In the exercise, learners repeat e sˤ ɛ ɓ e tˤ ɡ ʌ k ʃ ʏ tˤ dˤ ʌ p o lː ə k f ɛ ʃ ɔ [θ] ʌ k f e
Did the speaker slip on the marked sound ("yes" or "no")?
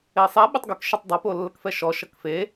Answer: yes